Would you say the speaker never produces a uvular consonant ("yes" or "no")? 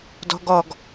yes